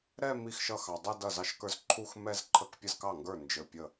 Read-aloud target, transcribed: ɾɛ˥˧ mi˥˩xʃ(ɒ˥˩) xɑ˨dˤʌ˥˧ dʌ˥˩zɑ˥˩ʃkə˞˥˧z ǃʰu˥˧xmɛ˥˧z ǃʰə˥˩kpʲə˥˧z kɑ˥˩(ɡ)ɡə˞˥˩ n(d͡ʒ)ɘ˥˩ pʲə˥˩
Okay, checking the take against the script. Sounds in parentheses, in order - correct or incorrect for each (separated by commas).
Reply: incorrect, incorrect, correct